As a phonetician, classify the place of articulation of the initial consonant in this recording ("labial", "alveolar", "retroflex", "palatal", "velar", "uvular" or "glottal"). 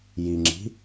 palatal